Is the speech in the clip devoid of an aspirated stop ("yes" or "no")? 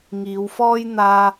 yes